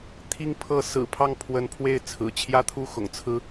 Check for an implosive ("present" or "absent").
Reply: absent